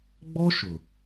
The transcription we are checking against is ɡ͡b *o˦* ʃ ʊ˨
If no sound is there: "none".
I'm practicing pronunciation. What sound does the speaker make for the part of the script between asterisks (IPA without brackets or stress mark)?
ɔ˦